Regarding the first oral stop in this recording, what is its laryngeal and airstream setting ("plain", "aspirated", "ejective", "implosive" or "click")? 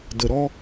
plain